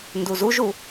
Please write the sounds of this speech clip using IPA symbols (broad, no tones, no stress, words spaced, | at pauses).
nduzuʒu